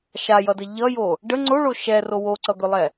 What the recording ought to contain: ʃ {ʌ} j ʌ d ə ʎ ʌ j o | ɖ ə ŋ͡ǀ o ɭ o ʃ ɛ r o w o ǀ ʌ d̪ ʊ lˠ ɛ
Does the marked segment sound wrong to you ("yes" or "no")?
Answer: yes